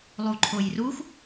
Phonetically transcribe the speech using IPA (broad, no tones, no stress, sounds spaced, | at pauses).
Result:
lˠ u ǃʰ o j r u x